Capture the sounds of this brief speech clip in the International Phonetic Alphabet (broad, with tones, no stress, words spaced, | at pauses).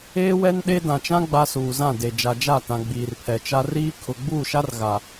eː˦wɛ˦n ɗe˦ dã˨t͡ʃã˦ ɡ͡ba˦suː˨zã˦˨ de˨ d͡ʒa˨d͡ʒa˦˨tã˨ ɡ͡biː˨rpʰɛ˨t͡ʃa˦ riː˦kʰʊ˨ ɡ͡buː˦˨ʃa˦r ɣa˨